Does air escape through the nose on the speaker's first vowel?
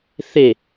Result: no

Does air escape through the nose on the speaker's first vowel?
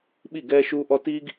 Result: no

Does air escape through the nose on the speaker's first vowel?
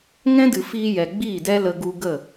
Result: yes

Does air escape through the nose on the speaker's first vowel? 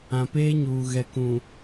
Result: yes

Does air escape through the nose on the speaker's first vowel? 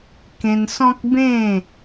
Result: yes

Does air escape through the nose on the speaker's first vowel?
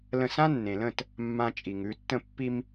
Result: yes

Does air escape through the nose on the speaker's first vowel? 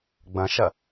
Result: yes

